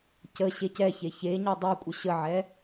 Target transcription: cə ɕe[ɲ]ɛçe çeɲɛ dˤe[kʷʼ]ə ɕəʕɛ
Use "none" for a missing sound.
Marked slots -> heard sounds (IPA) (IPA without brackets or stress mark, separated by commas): c, kʷʼ